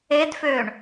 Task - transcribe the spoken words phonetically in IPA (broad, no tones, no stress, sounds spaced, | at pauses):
e d f øː ɳ